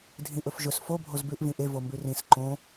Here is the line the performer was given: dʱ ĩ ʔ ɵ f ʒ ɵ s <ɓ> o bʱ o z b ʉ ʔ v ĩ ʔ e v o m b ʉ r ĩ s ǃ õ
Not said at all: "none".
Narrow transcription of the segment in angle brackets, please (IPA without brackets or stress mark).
f